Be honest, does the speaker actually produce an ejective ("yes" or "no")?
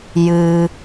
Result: no